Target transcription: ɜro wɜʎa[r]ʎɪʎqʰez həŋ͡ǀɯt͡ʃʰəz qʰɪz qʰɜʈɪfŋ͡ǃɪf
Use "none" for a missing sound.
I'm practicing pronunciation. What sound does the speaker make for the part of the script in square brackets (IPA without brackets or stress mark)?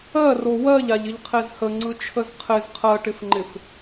none